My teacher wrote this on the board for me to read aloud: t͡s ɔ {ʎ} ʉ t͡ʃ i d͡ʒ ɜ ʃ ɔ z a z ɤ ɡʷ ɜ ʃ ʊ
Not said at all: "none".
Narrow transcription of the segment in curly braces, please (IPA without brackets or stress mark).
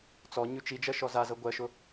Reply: ɲ